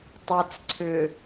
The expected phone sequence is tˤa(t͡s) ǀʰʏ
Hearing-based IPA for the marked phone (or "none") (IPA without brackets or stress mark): t͡s